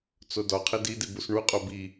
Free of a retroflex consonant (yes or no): no